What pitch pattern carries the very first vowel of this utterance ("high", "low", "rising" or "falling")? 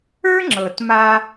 high